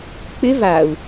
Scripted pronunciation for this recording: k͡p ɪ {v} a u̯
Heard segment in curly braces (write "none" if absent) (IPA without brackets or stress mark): v